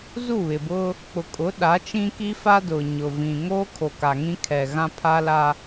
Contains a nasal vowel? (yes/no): yes